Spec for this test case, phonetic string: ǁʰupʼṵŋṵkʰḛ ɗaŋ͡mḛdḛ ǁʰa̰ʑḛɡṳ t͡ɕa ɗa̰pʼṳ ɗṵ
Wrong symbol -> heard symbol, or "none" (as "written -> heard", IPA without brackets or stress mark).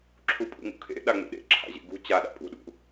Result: d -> ɗ